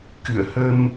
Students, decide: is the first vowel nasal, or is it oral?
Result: oral